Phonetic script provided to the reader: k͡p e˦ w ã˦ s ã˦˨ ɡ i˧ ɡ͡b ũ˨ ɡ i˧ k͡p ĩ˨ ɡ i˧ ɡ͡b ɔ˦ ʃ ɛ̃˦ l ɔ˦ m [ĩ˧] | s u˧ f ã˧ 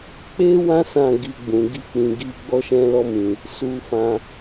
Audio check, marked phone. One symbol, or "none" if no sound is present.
ĩ˧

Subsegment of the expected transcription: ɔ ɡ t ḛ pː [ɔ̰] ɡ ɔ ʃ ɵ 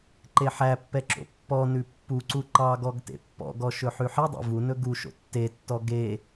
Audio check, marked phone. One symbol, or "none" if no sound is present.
ɔ̰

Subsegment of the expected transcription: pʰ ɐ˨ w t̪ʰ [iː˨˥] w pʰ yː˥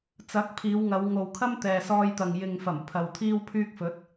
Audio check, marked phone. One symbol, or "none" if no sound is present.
iː˥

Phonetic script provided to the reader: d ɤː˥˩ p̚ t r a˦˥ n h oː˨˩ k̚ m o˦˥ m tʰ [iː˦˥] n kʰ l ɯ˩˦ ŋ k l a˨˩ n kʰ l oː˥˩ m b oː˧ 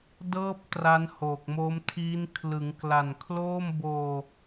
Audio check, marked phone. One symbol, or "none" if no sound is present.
iː˦˥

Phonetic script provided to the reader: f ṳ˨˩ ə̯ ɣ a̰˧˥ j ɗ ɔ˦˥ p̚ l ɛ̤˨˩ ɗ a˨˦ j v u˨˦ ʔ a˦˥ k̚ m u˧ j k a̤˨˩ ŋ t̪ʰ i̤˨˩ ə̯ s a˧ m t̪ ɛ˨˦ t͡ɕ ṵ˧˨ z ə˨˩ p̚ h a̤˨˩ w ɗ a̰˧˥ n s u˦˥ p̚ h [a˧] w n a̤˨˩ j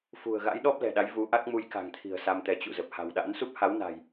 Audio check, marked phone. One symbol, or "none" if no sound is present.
a˨˦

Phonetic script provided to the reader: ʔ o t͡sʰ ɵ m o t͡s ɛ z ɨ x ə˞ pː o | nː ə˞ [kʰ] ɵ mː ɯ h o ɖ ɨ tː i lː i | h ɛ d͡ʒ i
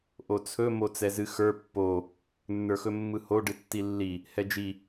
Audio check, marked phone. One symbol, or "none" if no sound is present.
x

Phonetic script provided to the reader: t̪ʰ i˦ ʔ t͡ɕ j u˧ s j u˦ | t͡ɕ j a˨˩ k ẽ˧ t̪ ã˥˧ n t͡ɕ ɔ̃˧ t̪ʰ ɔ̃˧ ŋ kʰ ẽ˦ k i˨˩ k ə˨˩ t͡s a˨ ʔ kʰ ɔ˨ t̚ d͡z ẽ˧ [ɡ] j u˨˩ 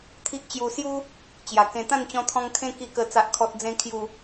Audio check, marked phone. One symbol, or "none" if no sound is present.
kʰ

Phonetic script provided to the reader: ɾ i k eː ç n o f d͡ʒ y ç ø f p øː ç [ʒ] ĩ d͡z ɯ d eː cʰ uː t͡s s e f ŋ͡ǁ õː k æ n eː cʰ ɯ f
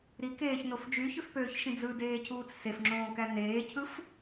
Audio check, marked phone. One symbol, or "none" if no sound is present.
ʃ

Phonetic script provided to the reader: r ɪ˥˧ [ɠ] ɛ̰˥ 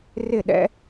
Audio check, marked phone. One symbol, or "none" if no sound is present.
ɗ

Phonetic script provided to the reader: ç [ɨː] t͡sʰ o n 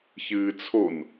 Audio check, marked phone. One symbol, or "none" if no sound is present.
ɨː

